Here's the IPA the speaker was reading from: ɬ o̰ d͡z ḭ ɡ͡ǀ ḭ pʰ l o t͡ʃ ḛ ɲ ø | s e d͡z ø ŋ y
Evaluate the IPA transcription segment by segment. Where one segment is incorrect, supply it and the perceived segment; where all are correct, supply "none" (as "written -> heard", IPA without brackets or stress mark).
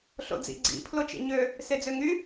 none